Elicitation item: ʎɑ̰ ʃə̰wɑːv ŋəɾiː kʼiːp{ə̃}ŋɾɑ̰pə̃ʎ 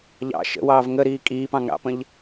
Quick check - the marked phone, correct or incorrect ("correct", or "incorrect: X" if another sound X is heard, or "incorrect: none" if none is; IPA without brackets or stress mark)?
incorrect: ɑ̃